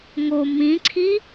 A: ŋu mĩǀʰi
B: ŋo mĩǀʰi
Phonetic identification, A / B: B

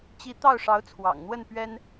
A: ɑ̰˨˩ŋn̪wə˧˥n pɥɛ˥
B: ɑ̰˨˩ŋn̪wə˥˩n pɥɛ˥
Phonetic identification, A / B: B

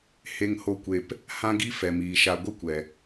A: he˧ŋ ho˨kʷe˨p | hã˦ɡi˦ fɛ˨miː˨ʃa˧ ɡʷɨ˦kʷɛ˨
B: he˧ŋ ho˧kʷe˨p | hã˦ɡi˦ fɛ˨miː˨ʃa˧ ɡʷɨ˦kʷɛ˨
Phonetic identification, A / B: B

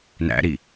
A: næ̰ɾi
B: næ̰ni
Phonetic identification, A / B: A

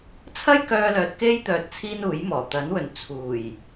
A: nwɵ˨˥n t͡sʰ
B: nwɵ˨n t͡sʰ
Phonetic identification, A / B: B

